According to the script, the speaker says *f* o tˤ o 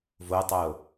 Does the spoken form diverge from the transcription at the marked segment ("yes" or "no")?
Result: yes